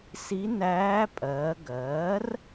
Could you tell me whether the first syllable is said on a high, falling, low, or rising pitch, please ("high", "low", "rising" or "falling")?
rising